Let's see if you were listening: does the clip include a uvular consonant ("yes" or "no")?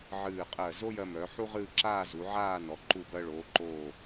yes